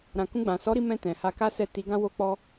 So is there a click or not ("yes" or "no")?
no